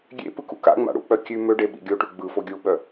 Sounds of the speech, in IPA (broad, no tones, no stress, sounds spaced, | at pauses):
ɡʲ ḛ p ɯ k ṵ k a̰ ŋ͡m a̰ ɽ ṵ k͡p œ kʲ ʉ m ø ɖ e ɓ ḭ ɡʲ o ʈ ʉ ɡ͡b ɯ f o ɡʲ u ɓ œ